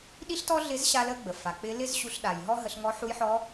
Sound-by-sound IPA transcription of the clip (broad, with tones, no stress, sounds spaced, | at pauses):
ɗ i˥ ɬ t ɔ˥ ɮ ɪ˧˥ z ɕ a˥ l ə˥ ɡ͡b ə˩ f a˩ k͡p ɪ˧˥ l ɪ˥ z ɕ u˧ ɬ ɗ a˩ j ɦ ɔ˥ ɦ ə˧ ɬ ŋ ɔ˧˥ ħ u˧˥ j ħ ɔ˧˥